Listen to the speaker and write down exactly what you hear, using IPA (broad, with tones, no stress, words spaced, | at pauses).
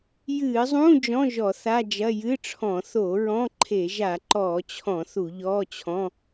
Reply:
jɨː˧˩˧zˤũː˧˥˧ d͡ʒɔ̃˧˥˧ ʒɔ˧˩˧θa˧˥˧d͡ʒɐ˧˥˧ jɨ˧˥˧ʈ͡ʂʰɔ̃˧˩˧ θo˧˩˧ ɹɔ̃˧˥˧ǃʰe˧˩˧ ʒa˧˩˧ǃɔː˧˩˧t͡ɕʰɔ̃˧˩˧ θu˧˩˧ʎɔː˧˥˧t͡ɕʰɔ̃˧˥˧